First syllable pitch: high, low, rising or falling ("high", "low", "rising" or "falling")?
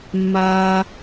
high